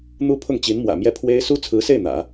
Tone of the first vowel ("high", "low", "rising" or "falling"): high